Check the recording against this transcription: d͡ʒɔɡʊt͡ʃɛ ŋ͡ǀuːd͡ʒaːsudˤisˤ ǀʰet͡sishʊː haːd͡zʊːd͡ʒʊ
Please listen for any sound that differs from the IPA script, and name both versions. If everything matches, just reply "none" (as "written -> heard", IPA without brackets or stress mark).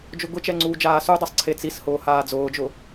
ɔ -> ʊ